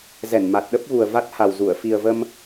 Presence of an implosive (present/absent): present